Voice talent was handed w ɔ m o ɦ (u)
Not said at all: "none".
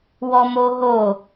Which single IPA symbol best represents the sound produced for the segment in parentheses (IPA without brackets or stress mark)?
o